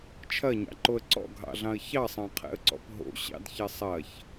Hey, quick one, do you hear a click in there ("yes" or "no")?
yes